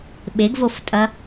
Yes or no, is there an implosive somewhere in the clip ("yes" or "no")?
yes